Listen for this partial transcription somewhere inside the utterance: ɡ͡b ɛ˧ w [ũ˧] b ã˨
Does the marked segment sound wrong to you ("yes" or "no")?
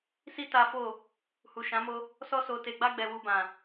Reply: yes